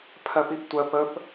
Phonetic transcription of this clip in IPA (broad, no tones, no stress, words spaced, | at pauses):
pʰɜpiptʷɜ pəp